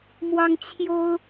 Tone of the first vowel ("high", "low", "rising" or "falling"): high